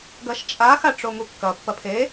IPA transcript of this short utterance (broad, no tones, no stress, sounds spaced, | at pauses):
ɡ ɐ ʃ t͡ʃʼ a x a ʈ͡ʂ o ŋ u kː ɐ pː ɐ pʰ e